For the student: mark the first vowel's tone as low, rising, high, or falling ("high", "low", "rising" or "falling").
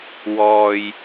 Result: low